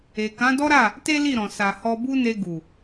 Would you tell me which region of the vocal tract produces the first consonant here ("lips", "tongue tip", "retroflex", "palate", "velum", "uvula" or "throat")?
velum